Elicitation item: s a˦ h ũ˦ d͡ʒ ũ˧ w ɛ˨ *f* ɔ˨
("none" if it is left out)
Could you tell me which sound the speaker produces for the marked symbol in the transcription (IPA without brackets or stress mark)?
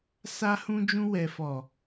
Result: f